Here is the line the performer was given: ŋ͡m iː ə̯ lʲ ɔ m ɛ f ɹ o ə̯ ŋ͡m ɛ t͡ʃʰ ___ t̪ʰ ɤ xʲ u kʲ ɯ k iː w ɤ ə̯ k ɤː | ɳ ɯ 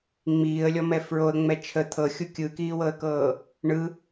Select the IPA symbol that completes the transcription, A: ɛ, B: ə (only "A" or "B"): B